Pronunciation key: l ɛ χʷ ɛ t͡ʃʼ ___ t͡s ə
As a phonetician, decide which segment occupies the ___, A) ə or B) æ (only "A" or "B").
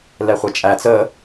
B